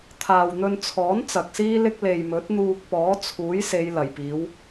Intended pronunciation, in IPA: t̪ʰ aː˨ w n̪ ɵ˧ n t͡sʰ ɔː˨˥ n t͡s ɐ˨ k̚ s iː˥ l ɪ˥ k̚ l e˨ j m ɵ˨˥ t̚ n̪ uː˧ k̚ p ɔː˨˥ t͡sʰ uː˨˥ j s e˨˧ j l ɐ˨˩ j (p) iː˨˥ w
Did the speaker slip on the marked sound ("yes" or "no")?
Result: no